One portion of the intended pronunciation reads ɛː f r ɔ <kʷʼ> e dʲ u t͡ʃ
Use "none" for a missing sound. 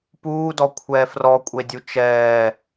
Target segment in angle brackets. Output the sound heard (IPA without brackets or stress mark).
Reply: kʷʼ